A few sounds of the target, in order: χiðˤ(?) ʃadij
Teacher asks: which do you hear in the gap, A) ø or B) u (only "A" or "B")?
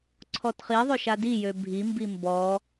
A